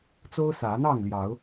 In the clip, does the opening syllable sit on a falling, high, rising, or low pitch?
high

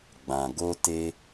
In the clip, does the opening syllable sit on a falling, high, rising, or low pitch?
low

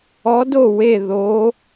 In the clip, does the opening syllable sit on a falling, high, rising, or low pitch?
rising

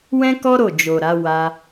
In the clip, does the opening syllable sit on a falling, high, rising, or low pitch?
high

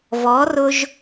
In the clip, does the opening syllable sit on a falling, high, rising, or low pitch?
rising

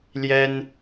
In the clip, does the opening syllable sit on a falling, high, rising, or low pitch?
high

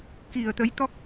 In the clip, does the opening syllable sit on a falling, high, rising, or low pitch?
low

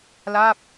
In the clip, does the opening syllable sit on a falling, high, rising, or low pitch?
falling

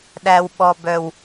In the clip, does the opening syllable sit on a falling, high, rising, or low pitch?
low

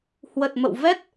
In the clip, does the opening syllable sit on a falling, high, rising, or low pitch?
low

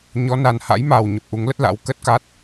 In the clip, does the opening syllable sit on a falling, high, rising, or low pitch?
rising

